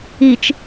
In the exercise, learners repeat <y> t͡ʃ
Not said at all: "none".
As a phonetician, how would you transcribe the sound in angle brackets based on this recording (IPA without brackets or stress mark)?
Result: i